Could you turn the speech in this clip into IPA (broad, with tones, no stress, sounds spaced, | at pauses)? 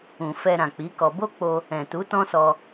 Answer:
ũ˨ f ɛ˧ ɾ ã˨ k͡p i˨˦ k ɔ˧ b o˦ k͡p o˧ | ɛ̃˨ t u˨˦ t ɔ̃˦ s ɔ˧